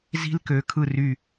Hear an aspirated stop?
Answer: yes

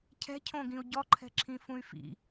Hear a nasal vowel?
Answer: yes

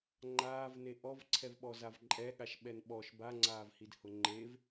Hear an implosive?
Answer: yes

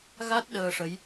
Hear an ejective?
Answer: no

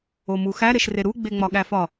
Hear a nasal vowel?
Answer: no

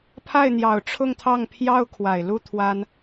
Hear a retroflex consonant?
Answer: yes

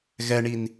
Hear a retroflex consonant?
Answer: yes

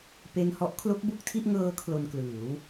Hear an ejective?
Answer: no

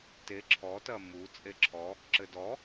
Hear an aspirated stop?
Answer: yes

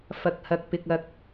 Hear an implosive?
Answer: no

